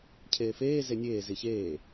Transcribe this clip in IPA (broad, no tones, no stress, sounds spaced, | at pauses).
cʰ eː f eː z e nʲ eː z i ç eː